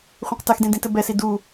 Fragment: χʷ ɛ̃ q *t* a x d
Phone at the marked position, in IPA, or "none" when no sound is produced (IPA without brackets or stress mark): t